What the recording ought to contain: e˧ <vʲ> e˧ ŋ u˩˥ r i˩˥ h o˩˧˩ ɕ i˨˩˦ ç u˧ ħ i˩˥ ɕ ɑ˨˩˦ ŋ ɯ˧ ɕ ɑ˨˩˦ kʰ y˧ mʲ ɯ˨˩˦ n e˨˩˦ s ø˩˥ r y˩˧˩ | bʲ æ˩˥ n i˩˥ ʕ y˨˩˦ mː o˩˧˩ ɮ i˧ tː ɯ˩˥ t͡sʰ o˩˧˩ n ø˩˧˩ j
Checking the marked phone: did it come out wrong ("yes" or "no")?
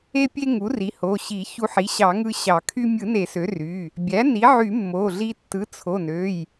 yes